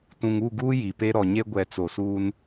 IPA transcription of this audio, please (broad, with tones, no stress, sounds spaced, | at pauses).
t ũ˨ ŋ u˦˨ ɡ uː˦ j i˨ p e˦ ɾ ɔ˨ ɲ e˦ ɡʷ ɛ˨ t͡s o˨ s uː˦ n